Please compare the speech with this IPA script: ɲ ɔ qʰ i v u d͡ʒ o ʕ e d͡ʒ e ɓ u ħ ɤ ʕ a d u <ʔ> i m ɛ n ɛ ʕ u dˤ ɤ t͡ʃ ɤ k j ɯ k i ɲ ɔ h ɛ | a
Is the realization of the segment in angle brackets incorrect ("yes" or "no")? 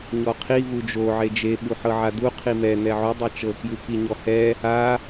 yes